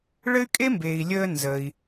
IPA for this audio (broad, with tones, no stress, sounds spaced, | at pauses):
ɭ ɘ˥ y̯ kʼ e˥ m b eː˩ i̯ lʲ əː˧ n z ə˩ i̯